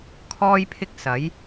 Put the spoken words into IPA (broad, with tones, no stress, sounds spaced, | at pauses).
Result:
kʰ ɔː˥ j pʰ ɪ˥ k̚ s ɐ˨˥ j